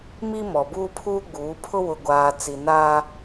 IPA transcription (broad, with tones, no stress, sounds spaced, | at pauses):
m i˦ m ɔ˨ b uː˦ pʰ uː˦ ɡ͡b uː˨˦ pʰ ʊ˦ w ʊ˨ ɡʷ aː˨ t͡s i˨ n aː˦